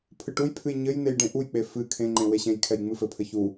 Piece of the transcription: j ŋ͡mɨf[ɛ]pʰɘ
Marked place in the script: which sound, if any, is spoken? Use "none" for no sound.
ɘ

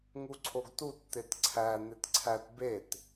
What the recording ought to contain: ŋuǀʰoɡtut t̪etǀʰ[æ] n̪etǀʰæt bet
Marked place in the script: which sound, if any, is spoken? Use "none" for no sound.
æ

